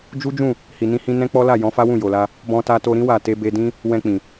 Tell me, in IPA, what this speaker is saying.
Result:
d͡ʒ u˦ d͡ʒ ũ˦˨ | h i˨ n ĩ˧ h ĩ˧ n ɛ̃˦ k͡p ɔ˦ l a˦˨ j ɔ̃˨˦ f a˦ w ũ˦˨ j o˨ l a˧ | b ɔ̃˧ t a˧ t o˧ ɾ ĩ˦ w a˦˨ t e˧ b e˧ d ĩ˦ | w ɛ̃˧ k͡p ĩ˨

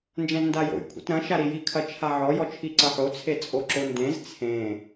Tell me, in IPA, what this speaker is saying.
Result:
n d͡ʒ ɛ̃ z n d a j o̰ j kʷʰ ḭ t ɾ ɐ̃ ʃ a ɾ i j i kʰ ɐ t͡ʃʰ a ʕ ɔ j ɔ t͡ʃʰ i ǀ ɐ ħ o t͡sʰ e t͡sʼ o ǁ o n d ẽ z t͡sʰ ẽ

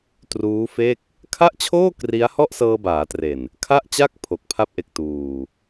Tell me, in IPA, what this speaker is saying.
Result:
t r uː˦˥ f e˥˩ k̚ | kʰ a˥˩ ʔ t͡ɕʰ oː˥˩ k r i˦˥ a̯ h ɔ˥˩ ʔ s ɤː˧ b aː˩˦ t r e˨˩ n | kʰ a˥˩ ʔ t͡ɕ a˥˩ k̚ pʰ o˨˩ k̚ pʰ a˦˥ p̚ ʔ e˨˩ k̚ t uː˨˩

